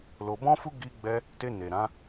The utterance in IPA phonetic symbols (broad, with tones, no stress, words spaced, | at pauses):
lo˧bɔ̃˦fu˦ ɡi˧ɡ͡bɛ˧ | te˧ne˨ ɾã˨˦